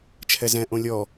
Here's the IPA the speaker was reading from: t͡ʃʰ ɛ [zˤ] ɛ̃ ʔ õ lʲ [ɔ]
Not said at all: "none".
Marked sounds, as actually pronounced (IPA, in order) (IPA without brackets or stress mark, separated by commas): z, ɔ